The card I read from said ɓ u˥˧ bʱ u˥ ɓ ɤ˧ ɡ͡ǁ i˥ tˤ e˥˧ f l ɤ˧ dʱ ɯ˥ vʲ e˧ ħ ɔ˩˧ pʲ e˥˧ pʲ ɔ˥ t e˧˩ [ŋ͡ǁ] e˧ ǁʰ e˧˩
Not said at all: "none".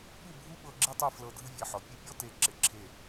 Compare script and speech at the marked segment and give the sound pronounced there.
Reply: ǁ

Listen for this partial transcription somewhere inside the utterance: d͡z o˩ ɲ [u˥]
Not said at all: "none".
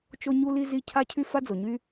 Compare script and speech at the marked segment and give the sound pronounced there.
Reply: y˥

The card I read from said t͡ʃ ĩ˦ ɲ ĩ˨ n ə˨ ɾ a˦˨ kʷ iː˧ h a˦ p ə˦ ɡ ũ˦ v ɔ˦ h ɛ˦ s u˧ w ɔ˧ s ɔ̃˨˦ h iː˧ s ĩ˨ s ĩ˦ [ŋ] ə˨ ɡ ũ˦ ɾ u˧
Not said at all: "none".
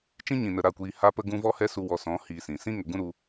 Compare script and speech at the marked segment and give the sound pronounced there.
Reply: ŋ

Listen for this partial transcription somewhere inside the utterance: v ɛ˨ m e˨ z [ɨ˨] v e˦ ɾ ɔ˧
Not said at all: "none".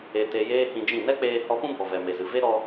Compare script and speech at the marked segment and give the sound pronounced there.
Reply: ɨ˨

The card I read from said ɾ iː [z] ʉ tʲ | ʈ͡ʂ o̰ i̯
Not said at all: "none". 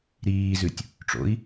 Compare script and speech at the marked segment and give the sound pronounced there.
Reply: z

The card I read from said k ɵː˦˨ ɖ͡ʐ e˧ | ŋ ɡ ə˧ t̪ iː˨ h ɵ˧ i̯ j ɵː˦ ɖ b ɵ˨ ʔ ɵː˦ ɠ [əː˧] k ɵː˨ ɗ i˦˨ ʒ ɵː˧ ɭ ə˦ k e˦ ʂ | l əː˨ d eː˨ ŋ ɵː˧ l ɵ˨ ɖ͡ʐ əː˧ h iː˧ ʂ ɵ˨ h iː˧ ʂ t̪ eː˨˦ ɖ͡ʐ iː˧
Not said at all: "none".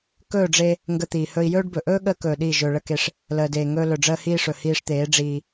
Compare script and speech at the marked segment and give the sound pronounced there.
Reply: əː˧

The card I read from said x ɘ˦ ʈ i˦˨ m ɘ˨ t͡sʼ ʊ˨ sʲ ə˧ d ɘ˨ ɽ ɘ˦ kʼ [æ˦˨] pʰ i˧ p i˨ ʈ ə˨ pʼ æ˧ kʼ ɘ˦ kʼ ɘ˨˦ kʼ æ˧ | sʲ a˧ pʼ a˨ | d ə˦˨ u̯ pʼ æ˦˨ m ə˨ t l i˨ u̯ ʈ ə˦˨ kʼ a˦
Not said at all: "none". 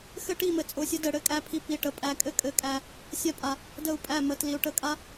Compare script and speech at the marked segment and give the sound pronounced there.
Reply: æ˧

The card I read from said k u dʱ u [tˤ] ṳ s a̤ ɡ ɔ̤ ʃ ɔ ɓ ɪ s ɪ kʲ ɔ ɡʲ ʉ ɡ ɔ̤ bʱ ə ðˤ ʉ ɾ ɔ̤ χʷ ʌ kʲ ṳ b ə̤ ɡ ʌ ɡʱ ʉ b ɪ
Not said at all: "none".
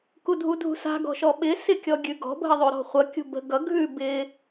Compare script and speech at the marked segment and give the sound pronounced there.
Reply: dʱ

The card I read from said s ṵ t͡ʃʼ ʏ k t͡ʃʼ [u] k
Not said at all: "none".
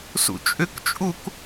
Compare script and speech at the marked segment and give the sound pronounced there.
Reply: u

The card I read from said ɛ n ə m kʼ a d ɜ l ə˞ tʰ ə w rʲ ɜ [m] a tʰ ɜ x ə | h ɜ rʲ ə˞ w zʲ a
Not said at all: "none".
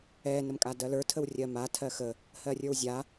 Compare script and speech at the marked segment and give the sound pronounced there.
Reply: m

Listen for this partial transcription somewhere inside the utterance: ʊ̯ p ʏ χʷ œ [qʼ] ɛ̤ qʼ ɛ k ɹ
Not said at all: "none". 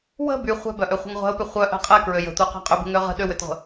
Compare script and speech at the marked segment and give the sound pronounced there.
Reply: ʔ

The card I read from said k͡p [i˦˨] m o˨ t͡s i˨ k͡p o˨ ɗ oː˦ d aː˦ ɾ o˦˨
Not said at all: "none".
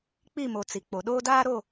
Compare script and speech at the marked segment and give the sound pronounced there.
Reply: i˦˨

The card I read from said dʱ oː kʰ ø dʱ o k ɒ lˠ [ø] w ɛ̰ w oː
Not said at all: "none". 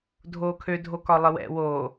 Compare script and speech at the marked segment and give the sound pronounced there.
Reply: ə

